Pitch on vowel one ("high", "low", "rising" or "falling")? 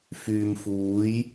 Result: low